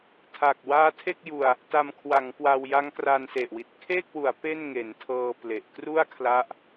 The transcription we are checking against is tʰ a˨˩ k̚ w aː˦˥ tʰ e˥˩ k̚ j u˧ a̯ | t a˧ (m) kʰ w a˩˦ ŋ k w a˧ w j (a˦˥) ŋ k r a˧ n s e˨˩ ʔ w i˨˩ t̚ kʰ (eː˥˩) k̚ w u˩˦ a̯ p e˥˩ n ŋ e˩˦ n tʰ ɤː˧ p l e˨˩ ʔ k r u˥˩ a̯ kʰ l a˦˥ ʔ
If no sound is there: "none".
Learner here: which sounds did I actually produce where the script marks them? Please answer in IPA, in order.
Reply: m, a˦˥, eː˥˩

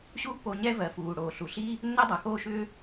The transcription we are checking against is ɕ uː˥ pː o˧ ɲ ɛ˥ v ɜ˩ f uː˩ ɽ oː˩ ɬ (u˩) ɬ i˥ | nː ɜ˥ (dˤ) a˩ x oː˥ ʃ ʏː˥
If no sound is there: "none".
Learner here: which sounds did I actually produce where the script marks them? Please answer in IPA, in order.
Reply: u˩, dˤ

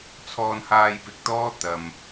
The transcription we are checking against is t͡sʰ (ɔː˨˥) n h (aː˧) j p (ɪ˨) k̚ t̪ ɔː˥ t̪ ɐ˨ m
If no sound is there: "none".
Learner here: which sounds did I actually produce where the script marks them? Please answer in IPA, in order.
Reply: ɔː˧, aː˧, ɪ˨

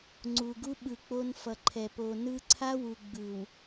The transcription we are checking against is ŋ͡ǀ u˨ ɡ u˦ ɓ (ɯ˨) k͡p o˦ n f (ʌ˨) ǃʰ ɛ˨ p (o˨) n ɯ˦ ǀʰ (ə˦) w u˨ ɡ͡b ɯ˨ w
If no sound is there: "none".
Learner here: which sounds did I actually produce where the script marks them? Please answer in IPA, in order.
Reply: ɯ˨, ʌ˨, o˨, a˦

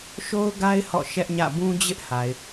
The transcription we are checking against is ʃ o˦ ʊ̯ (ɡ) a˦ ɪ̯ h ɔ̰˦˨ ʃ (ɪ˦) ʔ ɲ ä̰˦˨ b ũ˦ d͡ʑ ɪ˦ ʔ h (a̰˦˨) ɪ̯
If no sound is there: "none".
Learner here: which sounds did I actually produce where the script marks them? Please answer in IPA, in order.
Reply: ɡ, ɛ˦, a˨

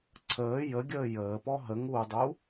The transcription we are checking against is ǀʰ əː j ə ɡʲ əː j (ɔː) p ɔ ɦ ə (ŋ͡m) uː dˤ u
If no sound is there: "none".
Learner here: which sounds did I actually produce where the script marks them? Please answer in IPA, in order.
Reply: əː, ŋ

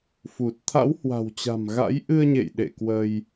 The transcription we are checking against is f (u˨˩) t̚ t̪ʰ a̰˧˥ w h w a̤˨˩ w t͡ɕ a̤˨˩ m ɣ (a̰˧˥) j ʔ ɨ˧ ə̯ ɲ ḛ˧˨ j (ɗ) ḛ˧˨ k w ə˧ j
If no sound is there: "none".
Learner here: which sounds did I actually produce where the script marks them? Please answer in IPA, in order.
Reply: u˨˩, a̰˧˥, ɗ

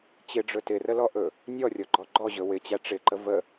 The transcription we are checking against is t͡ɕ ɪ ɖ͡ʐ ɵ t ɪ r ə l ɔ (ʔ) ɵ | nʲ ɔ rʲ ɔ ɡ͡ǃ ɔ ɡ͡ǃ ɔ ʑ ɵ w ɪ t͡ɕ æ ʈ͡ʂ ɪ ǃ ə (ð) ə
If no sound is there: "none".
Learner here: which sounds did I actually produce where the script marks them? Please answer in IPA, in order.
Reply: ʔ, v

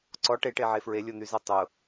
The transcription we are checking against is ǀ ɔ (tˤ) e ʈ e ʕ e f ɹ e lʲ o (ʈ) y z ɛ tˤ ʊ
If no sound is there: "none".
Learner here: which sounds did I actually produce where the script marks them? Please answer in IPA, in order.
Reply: ʈ, n̪

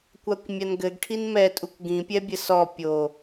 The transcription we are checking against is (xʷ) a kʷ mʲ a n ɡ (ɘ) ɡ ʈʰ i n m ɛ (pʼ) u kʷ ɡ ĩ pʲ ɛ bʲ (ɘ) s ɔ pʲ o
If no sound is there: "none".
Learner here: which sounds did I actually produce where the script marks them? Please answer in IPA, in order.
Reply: kʷ, ɘ, tʼ, ɘ

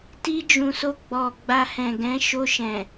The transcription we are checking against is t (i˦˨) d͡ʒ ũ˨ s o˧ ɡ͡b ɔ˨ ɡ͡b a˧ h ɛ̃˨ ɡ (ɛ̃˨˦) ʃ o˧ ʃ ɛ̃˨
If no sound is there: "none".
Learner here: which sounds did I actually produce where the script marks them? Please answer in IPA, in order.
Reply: i˧, ɛ̃˨˦

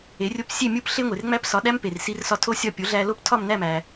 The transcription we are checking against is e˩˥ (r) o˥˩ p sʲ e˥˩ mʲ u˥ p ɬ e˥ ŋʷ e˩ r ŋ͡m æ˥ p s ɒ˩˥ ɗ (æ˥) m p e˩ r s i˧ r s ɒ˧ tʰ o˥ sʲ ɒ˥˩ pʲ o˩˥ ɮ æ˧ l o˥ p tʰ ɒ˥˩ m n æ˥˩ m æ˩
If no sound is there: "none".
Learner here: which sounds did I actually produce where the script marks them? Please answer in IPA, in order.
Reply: rʲ, æ˥

